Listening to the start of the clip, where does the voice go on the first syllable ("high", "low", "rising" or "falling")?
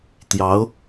rising